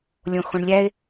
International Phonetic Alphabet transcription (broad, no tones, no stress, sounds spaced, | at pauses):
lʲ õ x õ ɳ lʲ æ e̯